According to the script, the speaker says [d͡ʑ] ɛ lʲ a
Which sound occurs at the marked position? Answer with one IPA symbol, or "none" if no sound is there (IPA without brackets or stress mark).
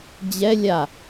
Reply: d͡ʑ